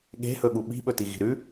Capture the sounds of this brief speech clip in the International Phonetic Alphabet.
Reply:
ɠe̤hɵɠu ɓi̤ɓɵtiɣi̤ ɾʉ

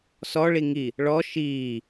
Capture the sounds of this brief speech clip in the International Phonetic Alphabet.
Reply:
sɔɭi ŋi | ɭɔ ʃiː

